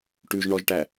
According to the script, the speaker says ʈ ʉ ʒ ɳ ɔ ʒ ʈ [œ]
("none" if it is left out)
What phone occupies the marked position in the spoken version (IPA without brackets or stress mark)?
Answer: æ